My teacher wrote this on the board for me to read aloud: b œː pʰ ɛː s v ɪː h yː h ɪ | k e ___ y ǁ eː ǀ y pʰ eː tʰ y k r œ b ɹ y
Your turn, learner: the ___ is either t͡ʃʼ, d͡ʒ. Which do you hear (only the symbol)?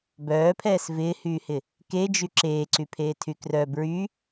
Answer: d͡ʒ